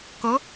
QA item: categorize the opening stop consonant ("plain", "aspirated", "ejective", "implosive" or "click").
plain